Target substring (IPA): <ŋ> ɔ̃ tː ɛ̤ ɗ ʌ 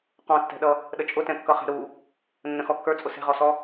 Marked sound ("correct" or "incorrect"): incorrect